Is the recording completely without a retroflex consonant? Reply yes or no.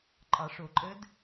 no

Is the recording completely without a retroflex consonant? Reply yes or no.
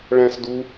no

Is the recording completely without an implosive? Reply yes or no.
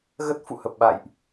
no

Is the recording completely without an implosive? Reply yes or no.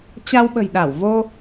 no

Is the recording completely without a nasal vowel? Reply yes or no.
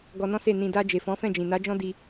no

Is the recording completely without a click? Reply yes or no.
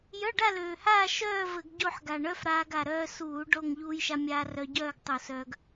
yes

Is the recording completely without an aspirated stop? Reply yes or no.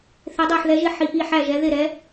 yes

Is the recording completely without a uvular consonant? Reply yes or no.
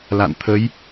yes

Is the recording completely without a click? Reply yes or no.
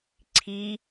no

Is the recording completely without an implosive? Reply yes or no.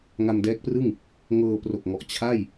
yes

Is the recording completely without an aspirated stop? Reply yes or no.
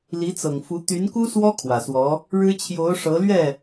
no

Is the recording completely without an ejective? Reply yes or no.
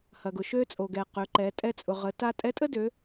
no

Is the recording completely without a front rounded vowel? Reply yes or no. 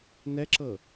yes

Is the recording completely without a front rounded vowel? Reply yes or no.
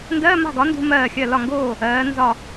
yes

